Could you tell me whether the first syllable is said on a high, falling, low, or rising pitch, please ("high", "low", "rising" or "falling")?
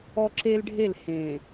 high